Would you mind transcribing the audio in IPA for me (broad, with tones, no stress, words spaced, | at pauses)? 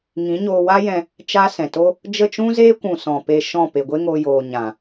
ŋĩ˨˦ɲoː˧wa˦jɛ̃˧ | t͡ʃa˦sɛ̃˨to˦ | d͡ʒə˦˨t͡ʃũ˦zeː˦kʷũ˨ sɔ̃˨pe˧ʃɔ̃˦˨ pe˨ɡʷe˦ŋo˧joː˨ ɲã˨